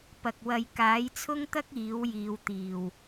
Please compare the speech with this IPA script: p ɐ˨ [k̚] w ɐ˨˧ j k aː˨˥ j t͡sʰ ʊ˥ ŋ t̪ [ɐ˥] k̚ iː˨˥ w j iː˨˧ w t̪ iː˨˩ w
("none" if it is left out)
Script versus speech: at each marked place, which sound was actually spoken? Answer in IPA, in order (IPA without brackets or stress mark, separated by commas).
k̚, ɐ˥